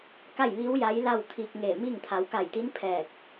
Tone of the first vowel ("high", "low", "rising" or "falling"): falling